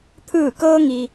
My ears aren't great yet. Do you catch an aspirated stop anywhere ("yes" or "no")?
yes